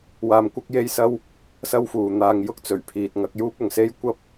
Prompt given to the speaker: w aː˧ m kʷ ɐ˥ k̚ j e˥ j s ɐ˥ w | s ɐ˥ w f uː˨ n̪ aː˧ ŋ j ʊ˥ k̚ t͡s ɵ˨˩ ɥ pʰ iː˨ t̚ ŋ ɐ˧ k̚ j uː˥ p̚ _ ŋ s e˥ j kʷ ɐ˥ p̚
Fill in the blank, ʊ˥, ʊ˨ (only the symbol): ʊ˨